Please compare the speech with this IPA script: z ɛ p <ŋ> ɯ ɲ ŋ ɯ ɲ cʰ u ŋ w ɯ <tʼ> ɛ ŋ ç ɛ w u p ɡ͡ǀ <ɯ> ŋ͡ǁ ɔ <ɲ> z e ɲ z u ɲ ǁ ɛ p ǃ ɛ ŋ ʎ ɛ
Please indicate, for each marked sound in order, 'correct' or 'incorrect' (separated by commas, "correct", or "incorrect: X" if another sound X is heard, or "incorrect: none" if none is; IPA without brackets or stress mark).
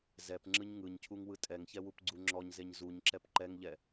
incorrect: ŋ͡ǁ, correct, incorrect: u, correct